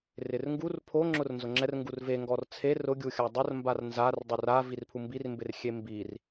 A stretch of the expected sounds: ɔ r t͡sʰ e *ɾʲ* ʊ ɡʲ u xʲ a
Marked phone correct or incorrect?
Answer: incorrect: r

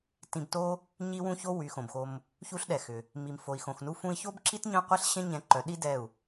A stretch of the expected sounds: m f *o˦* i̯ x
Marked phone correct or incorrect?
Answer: incorrect: o˨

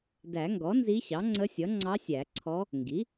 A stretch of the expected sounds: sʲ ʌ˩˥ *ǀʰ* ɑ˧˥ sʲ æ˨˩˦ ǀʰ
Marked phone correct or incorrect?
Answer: incorrect: ŋ͡ǀ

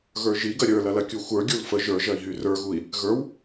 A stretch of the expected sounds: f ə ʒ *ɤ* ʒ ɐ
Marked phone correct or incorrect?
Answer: incorrect: ə˞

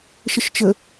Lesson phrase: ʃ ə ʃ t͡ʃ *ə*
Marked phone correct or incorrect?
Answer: correct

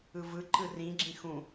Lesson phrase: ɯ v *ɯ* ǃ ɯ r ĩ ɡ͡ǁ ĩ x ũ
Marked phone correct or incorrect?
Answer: correct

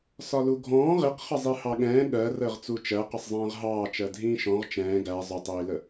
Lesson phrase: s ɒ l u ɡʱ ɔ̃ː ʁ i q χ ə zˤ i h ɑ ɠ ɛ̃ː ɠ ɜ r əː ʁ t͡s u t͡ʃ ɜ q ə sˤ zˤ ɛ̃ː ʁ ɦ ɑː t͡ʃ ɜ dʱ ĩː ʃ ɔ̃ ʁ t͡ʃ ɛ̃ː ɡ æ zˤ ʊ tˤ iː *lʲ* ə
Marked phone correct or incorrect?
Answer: incorrect: l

